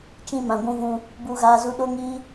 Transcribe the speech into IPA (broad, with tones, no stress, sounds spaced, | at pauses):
t͡ʃ ĩ˧ m ã˨ ɡʷ ũ˧ v ũ˧ | b u˧ ɣ aː˧ z u˧ ɗ o˦ ŋ iː˦